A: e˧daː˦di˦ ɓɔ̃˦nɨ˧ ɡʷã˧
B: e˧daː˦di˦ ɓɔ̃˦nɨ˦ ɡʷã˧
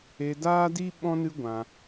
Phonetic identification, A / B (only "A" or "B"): B